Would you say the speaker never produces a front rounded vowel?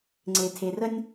yes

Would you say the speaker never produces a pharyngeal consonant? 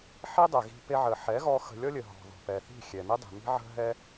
no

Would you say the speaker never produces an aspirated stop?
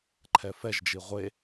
no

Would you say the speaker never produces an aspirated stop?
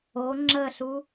yes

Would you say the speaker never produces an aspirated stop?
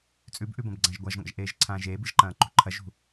no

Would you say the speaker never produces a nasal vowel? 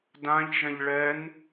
no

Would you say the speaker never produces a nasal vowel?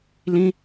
no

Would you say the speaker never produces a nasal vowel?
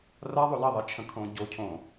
no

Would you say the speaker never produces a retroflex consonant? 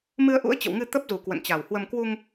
yes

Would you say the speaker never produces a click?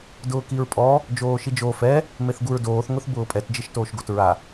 yes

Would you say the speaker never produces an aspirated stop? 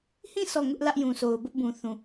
yes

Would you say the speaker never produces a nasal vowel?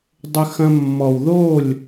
no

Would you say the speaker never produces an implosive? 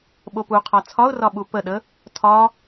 no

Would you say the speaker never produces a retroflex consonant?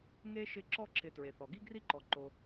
yes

